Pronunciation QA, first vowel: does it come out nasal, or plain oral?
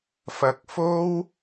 oral